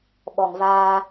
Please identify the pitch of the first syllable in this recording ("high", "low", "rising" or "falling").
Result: low